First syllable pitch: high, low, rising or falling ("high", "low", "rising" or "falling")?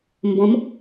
rising